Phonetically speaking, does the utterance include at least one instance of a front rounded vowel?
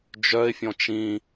yes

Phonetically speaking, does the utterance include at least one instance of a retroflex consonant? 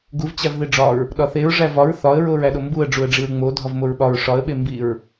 yes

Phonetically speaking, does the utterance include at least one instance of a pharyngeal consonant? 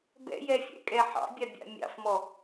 yes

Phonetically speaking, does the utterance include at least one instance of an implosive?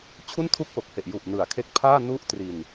no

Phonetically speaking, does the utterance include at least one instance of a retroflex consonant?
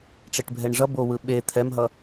yes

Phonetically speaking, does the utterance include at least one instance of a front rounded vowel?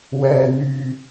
yes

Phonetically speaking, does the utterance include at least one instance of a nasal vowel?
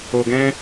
yes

